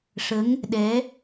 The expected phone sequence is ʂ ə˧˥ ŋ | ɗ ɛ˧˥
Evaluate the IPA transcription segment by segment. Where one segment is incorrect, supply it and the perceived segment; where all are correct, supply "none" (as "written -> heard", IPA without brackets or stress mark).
none